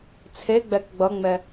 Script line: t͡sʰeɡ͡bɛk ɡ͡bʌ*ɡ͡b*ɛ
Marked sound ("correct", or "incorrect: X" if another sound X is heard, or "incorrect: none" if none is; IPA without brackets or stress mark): incorrect: ŋ͡m